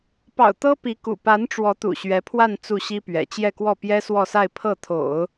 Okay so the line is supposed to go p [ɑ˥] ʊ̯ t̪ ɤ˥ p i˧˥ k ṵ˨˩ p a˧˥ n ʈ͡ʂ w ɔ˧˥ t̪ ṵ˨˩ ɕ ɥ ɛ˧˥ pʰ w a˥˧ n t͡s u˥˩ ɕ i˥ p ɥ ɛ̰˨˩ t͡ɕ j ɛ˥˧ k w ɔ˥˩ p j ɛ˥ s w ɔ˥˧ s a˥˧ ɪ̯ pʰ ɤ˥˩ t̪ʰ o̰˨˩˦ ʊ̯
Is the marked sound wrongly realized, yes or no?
yes